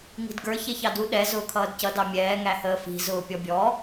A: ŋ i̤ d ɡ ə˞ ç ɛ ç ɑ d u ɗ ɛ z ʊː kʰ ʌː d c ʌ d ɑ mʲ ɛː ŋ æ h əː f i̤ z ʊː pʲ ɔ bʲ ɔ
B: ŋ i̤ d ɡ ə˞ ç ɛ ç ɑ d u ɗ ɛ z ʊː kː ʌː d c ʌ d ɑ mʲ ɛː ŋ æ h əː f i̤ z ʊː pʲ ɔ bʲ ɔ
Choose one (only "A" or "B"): A